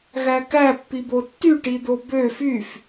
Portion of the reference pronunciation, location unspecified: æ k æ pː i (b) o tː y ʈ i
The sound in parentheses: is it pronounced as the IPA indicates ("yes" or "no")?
yes